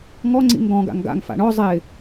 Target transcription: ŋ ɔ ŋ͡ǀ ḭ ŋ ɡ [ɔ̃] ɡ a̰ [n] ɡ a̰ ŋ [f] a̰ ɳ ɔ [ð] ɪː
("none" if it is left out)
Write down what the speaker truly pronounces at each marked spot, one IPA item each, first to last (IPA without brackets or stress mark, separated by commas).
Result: ɔ̃, ŋ, f, zˤ